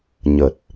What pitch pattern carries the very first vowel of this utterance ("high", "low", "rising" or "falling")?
low